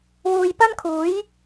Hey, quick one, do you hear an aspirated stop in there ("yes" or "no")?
yes